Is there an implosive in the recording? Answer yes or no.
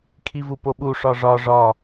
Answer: yes